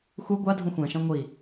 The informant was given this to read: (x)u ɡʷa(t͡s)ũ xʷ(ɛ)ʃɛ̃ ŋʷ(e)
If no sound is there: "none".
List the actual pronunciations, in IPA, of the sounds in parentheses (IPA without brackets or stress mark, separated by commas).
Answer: x, dʱ, ɛ̃, i